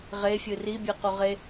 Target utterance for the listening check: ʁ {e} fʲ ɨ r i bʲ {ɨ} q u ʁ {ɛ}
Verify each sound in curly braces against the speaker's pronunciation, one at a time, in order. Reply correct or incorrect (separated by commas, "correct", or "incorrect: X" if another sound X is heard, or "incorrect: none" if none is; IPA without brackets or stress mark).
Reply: correct, correct, incorrect: e